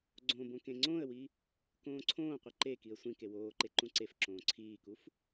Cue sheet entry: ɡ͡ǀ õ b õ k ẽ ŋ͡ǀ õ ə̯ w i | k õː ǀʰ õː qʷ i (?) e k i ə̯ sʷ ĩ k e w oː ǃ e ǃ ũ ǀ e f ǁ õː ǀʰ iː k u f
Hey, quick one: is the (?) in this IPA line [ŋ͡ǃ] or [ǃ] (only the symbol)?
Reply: ǃ